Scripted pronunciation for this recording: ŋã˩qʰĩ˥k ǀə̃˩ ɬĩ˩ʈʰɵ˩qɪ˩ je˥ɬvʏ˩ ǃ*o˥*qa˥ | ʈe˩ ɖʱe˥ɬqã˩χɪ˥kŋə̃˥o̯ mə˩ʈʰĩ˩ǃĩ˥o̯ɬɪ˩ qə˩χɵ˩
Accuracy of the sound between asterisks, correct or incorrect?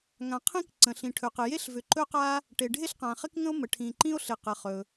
incorrect